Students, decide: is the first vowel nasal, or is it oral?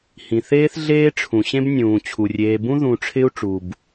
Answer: nasal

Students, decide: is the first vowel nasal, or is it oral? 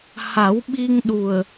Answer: oral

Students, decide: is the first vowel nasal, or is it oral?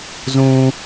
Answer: nasal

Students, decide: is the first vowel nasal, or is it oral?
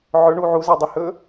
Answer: oral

